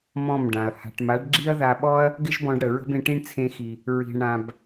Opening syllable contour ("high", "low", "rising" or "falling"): falling